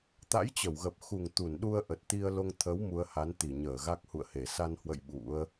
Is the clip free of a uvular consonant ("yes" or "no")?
yes